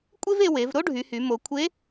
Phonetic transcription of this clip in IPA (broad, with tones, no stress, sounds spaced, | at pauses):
kʷʼ e˥ v e˧ w e˩˧ v ɾ o˥ ɖʱ y˩˧ h y˩˧ m o˩˧ kʷʰ e˧˥